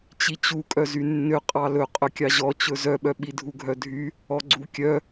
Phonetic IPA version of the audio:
t͡ɕ i t͡ɕ u kʼ œ z y nː ø qʼ ɑ l ɵ qʼ ɵ kʲ ɑ ʑ ɔ t͡ɕ ɵ z œ ɓ œ ɓ i dʱ u ɡʱ œ dʱ y | ɔ ɡ͡ǀ u kʲ œ

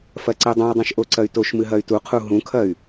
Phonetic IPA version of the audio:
f ɐ ǀ i dˤ ũ i̯ dˤ ũ ʃ ʔ o ǀ ɐ y̯ t o ʃ m ɨ ɦ ɐ y̯ t u qʰ u ɦ ũ kʰ ɐ y̯

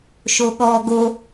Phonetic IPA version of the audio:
ʃ o ɠ ɔ ɡ o

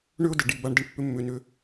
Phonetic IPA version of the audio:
ɳ ʏ˦ ʊ̯ d ə˩ ɖ i˨ b a˦ ɳ d ə˥ ɳ pː ʏ˥ mː ʏ˨ n ʏ˦

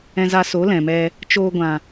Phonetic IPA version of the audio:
ɛ̃˧ z a˧ s o˨˦ l ɛ̃˨ m ɛ˧ | t͡ʃ oː˧ ɡʷ ã˨

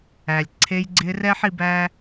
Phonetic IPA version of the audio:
æ˨ lʲ ǀʰ e˧ j ɡ͡ǀ ɪ˧ r ɛ˦ ħ i˧ b æ˦

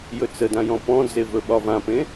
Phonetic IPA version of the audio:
j ɵ t͡s ə d ã j ɔ̃ p ɔ̃ d͡z e v ɵ ɓ ɒ v ã p ẽ

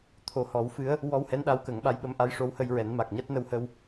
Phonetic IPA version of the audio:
t̪ʰ o˨˩ h ɔ˨˩˦ w f ɨ˧˥ ə̯ | w ɔ˧ w h ɛ˧˥ n ɗ a˧˥ w k ə˨˩˦ ŋ ɓ a˧˥ j ɓ ə˧˥ m ʔ a˧˥ j ʂ o˧˥ w h ə˧ j ɹ ɛ˨˩˦ n m a˨˩ k̚ ɲ a˦˥ t̚ n ə˧ w h ə˧ w

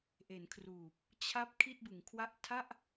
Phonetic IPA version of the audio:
ʔ e˩˦ n kʰ r uː˨˩ p̚ | t͡ɕʰ a˦˥ p̚ kʰ i˥˩ t̚ b ɯ˩˦ ŋ kʰ w a˥˩ ʔ tʰ a˥˩ ʔ

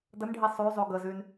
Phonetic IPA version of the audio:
d ə n ɖʱ i sˤ y zˤ y ɡ ə z y n

